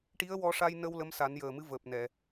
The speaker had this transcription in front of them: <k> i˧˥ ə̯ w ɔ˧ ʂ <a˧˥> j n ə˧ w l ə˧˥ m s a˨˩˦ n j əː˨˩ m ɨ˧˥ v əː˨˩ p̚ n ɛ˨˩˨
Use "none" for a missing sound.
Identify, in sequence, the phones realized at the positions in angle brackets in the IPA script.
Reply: ʈ, a˧

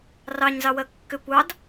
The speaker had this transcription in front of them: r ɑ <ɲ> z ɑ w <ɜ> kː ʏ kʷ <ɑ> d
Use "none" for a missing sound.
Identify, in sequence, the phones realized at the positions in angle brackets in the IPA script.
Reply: ɲ, ɜ, ɑ

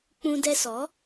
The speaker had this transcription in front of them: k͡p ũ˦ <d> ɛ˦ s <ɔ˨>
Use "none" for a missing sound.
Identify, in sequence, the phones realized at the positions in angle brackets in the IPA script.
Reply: d, ɔ˨˦

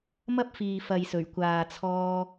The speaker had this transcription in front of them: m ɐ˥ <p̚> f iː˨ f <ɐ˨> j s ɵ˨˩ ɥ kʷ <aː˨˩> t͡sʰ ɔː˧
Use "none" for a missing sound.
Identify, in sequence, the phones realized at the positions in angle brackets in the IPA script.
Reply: p̚, ɐ˨, aː˨

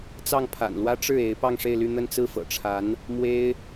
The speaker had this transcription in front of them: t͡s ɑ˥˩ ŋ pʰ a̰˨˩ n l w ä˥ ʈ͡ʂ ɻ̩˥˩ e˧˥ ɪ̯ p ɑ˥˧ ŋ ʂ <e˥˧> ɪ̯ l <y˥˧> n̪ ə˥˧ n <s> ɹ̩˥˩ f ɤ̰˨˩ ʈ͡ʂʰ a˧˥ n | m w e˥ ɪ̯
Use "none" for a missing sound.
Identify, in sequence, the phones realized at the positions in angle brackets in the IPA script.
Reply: e˥˧, y˥˧, t͡s

